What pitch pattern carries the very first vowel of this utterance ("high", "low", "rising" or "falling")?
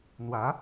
rising